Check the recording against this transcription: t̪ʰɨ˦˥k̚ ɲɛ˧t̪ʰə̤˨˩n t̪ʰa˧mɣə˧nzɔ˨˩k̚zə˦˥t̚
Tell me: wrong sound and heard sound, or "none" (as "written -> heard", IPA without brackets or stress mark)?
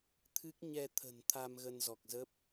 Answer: t̚ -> p̚